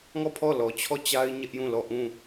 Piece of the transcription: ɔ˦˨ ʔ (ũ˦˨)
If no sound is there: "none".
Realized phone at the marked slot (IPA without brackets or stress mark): ũ˦˨